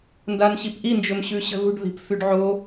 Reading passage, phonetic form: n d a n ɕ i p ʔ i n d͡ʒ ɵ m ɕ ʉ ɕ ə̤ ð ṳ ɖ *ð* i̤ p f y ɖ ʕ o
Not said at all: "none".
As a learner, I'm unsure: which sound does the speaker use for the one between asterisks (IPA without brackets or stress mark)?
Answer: ð